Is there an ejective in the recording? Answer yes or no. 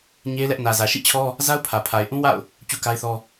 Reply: no